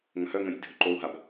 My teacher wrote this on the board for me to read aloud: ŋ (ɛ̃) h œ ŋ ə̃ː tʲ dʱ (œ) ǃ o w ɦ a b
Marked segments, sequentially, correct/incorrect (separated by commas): incorrect, incorrect